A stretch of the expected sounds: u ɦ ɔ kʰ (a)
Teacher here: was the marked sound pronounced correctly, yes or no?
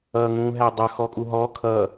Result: no